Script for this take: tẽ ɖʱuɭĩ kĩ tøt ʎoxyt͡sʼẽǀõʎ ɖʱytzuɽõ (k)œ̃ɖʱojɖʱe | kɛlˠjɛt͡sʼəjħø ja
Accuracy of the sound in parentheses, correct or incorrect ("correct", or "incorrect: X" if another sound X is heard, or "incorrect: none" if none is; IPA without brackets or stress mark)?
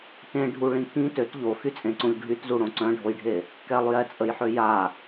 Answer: incorrect: ǀ